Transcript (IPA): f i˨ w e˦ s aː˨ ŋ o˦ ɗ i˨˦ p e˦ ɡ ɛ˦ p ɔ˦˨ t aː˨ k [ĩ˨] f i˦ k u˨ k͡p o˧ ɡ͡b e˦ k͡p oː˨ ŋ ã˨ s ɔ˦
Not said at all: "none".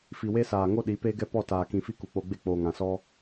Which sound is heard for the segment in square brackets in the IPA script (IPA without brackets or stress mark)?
ĩ˨